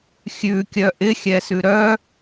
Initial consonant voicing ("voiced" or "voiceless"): voiceless